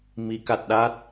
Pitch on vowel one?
rising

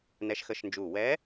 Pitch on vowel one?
rising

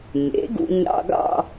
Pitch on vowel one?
rising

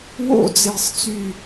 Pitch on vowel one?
falling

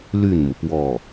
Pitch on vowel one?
falling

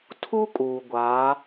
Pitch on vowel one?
high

